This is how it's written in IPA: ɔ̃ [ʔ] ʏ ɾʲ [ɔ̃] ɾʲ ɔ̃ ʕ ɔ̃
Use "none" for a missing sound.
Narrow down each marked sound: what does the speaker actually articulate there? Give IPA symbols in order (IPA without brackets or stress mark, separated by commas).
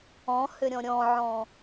h, ɔ̃